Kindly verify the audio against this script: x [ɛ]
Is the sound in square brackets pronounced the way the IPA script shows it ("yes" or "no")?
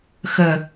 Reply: no